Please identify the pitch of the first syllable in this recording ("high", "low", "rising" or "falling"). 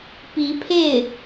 rising